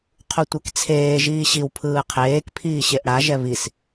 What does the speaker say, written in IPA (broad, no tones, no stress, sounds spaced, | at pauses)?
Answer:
qʰ u tʷ ɛ k t͡sʰ eː ʒ iː ɕ i w pʰ ɯː qʰ eː k pʰ iː ɕ e ʔ ɽ a ʒ ɛ β i s